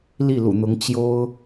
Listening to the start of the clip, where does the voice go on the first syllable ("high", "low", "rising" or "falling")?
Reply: falling